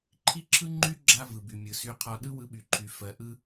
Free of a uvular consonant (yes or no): no